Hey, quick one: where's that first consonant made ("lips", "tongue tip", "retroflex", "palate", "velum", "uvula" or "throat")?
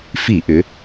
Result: lips